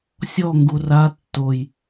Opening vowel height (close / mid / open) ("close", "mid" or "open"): mid